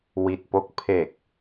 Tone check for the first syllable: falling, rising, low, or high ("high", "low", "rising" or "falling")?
low